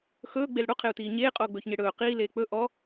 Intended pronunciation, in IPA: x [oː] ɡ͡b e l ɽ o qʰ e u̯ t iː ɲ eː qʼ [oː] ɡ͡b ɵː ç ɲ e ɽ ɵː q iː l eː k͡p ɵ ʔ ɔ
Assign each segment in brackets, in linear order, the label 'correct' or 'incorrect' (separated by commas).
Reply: incorrect, correct